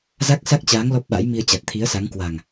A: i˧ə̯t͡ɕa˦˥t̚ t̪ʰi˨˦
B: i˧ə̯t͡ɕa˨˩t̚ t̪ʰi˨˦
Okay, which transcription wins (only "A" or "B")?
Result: B